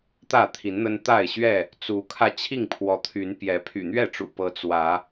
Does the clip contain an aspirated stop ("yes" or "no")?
yes